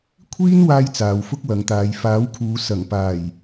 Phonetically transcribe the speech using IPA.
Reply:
kʷʰiː˥n waː˥jt͡saː˨wfʊ˥k̚ wɐ˨˧ŋt̪aː˨˧j faː˨˥wkʰuː˨˧ sɐ˨˩ŋpaː˨˩j

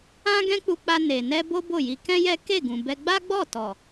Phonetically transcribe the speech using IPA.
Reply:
ã˦ɡɛ̃˦k͡pu˧k͡pa˧ ne˨nɛ˧ bo˦bo˦˨ji˧ kɛ̃˦jɛ˦ ke˦˨ɡũ˨bɛ˧ ɡ͡ba˦ɡ͡bɔ˦˨tɔ˨

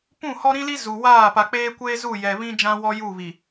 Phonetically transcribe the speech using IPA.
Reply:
pũ˦˨hɔ˦ ɾĩ˦li˦ zu˨waː˦˨ pa˨k͡peː˦kʷeː˦ zu˦˨jɛ˨ βĩ˦ d͡ʒã˦wɔ˦ ju˦˨βi˨

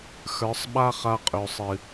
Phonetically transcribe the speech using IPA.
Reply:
xə˞˨˦sˤɓa˦χa˧ qʼø˨sˤɨ˨

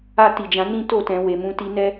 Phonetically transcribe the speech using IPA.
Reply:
a˧ ti˨d͡ʒã˨˦ nĩ˦to˦˨tɛ̃˨ we˨mũ˧ti˧nɛ˦

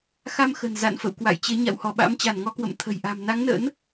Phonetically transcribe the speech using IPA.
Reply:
xa˧mxə̤˨˩n za̰˧˨n fə̰˧˨w kwa̰˧˨jt͡ɕe˨˦ ɲa̰˧˨whɔ˧˩ ɓa̰˧˥mt͡ɕa˧˩nŋɔ˧kwə̰˧˨m t̪ʰə̤˨˩jʔa̤˨˩m na˨˦ŋnə̰˧˥n

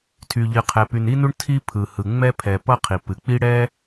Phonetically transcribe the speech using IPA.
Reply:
tʰy˩ʎɨ˩qʰɛ˩ py˩ni˥nu˥ɳ tʰi˥ pʰɯ˩hɯ˩ŋ͡mɛ˥ pʰɛ˩ pʌ˥qʰi˩ pɨ˩k͡pi˥ɽɛ˥

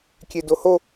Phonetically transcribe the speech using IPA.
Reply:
kʲedoho

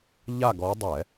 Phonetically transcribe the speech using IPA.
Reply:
ʎa˦˨ɡɔ˨˦ dˤɛ˧˩˧

